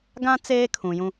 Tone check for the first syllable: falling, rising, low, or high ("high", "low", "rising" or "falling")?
high